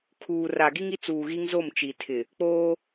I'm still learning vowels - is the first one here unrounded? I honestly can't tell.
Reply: no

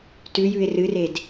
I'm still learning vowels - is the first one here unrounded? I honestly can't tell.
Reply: no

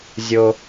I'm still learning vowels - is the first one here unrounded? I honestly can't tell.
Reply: no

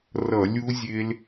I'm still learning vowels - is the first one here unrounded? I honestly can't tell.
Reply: yes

